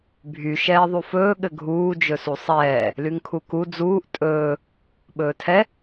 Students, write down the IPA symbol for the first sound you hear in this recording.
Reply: bʱ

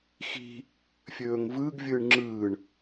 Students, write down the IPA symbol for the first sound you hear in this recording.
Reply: x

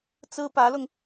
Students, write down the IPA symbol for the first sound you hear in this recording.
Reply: t͡s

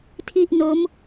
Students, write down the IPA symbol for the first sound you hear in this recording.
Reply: tʰ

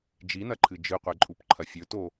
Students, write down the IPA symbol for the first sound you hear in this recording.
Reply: d͡ʒ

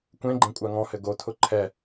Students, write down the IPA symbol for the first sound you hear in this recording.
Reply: kʷ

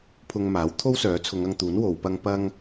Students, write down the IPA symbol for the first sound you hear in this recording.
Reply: pʰ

